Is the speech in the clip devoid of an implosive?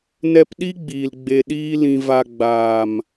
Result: no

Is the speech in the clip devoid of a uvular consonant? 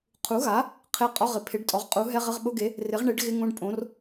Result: no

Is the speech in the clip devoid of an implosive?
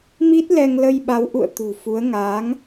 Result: no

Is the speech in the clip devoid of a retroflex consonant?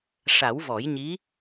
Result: no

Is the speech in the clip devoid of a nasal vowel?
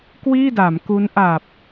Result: yes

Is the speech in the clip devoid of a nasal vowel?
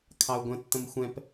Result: no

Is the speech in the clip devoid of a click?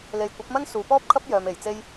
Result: yes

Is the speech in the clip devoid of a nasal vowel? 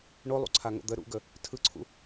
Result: yes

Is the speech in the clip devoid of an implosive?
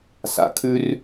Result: yes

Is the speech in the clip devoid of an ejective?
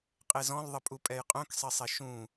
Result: no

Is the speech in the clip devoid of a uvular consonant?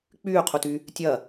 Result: no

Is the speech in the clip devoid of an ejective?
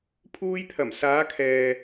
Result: yes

